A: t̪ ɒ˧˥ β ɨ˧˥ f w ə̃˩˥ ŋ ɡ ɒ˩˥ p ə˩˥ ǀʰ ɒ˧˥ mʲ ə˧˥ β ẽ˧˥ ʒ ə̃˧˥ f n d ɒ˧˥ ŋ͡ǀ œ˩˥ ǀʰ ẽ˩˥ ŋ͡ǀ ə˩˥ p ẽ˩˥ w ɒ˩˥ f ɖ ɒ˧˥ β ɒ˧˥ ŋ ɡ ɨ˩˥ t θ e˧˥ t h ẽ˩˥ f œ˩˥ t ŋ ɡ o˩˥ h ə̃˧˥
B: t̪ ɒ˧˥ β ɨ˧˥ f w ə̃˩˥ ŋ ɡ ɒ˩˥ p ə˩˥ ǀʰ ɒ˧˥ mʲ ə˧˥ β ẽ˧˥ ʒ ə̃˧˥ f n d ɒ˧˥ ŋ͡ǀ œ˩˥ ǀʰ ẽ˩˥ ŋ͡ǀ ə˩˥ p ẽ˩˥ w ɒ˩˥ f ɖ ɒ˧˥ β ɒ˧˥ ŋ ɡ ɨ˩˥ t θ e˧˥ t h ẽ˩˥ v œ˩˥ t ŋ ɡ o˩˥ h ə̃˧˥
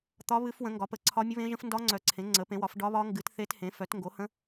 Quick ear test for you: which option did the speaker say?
A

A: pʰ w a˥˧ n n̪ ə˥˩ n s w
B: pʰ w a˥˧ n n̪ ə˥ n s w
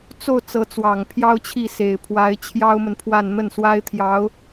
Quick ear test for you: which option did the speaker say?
A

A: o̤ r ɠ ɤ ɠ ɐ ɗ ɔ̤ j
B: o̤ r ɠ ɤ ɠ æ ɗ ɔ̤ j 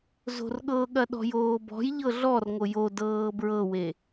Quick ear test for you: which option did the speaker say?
A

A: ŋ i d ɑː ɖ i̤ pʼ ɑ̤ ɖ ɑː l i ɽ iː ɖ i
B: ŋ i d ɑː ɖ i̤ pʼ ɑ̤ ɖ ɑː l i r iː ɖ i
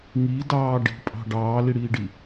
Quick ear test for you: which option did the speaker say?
A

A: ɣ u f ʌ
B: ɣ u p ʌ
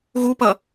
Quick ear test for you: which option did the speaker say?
B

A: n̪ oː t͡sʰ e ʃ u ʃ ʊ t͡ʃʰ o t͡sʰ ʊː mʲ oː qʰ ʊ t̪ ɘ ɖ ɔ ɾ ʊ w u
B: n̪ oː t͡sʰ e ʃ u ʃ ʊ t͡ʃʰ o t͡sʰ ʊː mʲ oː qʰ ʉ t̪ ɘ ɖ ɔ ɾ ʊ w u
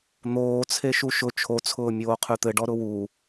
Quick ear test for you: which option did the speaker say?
B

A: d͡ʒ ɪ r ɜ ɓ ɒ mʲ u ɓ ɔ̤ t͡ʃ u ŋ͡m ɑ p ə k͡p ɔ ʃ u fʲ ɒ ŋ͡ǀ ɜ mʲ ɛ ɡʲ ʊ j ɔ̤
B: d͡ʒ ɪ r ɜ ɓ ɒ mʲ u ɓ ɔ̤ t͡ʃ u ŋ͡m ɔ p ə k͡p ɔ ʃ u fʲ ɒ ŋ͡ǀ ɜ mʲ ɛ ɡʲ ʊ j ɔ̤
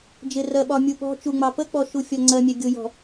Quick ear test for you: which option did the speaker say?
A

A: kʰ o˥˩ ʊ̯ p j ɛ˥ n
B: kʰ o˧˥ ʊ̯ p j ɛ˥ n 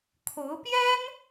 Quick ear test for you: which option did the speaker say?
B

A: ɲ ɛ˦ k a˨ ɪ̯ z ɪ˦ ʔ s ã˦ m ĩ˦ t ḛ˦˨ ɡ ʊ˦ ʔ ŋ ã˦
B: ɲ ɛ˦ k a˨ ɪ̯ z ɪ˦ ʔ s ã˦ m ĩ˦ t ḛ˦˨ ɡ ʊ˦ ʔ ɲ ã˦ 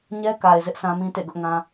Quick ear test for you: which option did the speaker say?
A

